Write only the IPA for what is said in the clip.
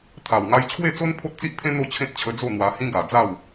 t̪ʰa˨˩w ŋa˧jt͡ɕʰwe˥˧t͡so˦n pʰo˦t̚t͡si˦ʔpʰẽ˦ n̪o˥˧t͡ɕʰẽ˦t̚t͡ɕʰə˧ d͡zo˥˧n̪wa˧hĩ˦ ɡa˨˩ d͡za˥˧w

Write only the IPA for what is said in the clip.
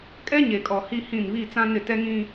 kʼɛ˦ ɲe˨kʼɔ˨ hi˦hĩ˦˨n βi˦˨t͡sã˦nɪ˦˨ tɛ˦ŋĩ˦

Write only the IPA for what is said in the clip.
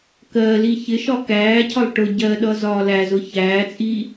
kɜli çɪʃɒ kæːcʰɒlˠ ʈʊ ɟɜɗʌ zɒːlæzʊ çæːt͡sʼi

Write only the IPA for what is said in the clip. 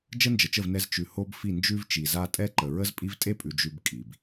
d͡ʒə˦nd͡ʒə˨t͡ʃə˦˨v nɛ˧zt͡ʃʉ˨ ho˧b fi˦˨nd͡ʒʉ˦vt͡ʃi˨za˦ tʼɛ˦ǃə˨ ɹə˦zpʼi˦v tʼe˦pʼʉ˨ d͡ʒʉ˧b kʼi˨b

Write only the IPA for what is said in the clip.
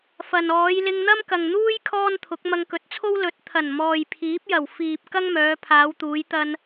fɐ˨n ɔː˨˧jlɪ˧ŋ n̪ɐ˥mkɐ˨ŋn̪uː˥j kʰɔː˥nt̪ʰʊ˨˥k̚ mɐ˧ŋkɵ˨˥t̚t͡sʰo˥w lɵ˨˥t̚t̪ʰɐ˨˩nmɔː˨j pʰiː˨˥p̚jɐ˨˩w fiː˨p̚ kɐ˥ŋmœː˨˧pʰaː˨˧w t̪uː˨˧jt̪ɐ˧n

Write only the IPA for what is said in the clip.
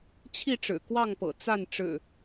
t͡ɕʰi˥˨ʈ͡ʂɻ̩˨˩kwɑ˥˨ŋpɤ̰˨˩ t͡sa˥˨n ʈ͡ʂɻ̩˨˩

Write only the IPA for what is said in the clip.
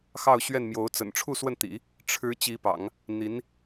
xɑ˥˧ʊ̯ɕɥɛ˥˩nmjo˧˥ʊ̯ t͡sə̰˨˩nʈ͡ʂʰu˥˧swə˥˩nt̪ḭ˨˩˦ | ʈ͡ʂʰɻ̩˧˥ t͡ɕi˧˥pɑ̰˨˩˦ŋ | n̪i˧˥n

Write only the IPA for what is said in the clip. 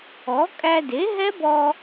ɔ˩˥kʼæ˧ de˩˥ɦɛ˦˥bɔ˧

